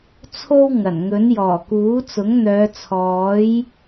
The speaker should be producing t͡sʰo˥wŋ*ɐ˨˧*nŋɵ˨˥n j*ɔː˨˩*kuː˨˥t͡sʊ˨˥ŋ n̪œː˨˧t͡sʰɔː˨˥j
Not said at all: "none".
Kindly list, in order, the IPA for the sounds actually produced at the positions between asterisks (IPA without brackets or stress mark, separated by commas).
ɐ˨˩, ɔː˨˩